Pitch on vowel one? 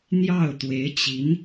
falling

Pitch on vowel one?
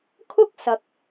high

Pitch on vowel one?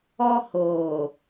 high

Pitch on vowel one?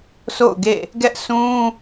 falling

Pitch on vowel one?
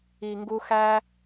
low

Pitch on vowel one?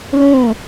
falling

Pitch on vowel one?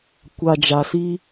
low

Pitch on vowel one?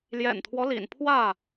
low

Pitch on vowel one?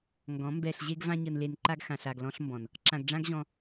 rising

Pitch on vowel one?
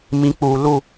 rising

